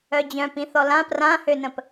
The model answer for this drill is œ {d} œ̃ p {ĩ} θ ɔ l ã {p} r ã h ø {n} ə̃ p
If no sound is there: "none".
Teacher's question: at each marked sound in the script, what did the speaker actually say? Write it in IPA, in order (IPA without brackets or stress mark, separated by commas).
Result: d͡ʑ, ĩ, p, n